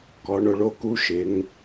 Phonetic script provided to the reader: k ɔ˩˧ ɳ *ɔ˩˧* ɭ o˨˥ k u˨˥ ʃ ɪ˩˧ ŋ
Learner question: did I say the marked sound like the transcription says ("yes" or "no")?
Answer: no